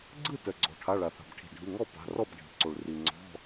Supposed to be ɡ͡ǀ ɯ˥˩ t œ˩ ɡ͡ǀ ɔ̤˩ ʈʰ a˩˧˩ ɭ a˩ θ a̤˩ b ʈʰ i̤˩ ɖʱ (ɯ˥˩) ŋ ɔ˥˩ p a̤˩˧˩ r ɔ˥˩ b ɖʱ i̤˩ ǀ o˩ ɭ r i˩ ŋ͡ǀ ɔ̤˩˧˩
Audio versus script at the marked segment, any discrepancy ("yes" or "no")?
yes